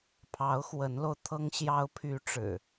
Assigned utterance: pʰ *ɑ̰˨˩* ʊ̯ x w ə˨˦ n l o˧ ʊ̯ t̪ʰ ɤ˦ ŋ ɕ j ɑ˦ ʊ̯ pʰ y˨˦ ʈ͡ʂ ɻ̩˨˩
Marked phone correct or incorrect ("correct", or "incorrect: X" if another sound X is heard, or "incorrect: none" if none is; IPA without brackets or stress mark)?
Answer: incorrect: ɑ˨˦